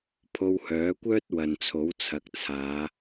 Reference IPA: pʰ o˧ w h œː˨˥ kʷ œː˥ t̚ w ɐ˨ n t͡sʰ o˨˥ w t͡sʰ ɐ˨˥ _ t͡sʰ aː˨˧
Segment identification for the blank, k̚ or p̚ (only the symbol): k̚